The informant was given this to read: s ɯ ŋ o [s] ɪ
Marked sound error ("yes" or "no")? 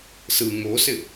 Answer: no